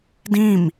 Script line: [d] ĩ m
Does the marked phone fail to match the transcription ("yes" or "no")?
no